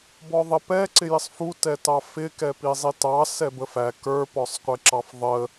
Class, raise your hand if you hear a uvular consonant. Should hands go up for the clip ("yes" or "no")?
yes